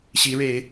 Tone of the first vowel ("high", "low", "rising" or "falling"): rising